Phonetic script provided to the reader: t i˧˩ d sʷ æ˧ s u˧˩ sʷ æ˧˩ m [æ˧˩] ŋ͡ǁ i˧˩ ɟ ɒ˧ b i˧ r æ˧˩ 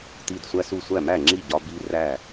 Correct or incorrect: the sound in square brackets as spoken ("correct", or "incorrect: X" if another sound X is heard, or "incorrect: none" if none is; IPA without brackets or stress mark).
correct